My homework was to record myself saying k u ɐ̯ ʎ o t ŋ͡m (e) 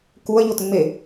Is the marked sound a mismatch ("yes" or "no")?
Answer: no